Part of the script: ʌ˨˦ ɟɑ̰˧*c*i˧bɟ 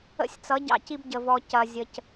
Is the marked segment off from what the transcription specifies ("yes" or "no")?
no